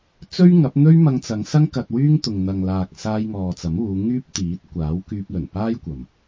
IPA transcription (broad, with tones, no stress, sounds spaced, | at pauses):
t͡s ɵ˥ ɥ ŋ ɐ˨˥ p̚ n̪ ɵ˥ ɥ m ɐ˧ ŋ t͡s ɐ˨˧ ŋ s ɐ˥ ŋ k ɐ˧ t̚ w yː˥ ŋ t̪ ʊ˨ ŋ n̪ ɐ˨ ŋ l aː˨ k̚ s aː˧ j ŋ ɔː˨ t͡s ɐ˨˥ m uː˨˧ ŋ yː˥ p̚ t̪ iː˨˥ t̚ kʷ aː˨˥ w k yː˧ p̚ l ɵ˨˩ n p aː˥ j kʷ ɐ˨ m